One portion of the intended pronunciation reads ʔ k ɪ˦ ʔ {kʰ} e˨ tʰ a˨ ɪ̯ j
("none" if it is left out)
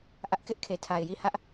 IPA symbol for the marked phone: kʰ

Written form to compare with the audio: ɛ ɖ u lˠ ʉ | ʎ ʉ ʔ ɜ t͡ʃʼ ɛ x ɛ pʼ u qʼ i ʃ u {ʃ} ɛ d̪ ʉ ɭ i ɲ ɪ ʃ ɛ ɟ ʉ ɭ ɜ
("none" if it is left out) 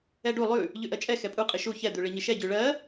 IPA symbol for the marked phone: ç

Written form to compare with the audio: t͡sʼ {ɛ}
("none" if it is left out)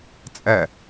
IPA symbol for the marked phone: ɛ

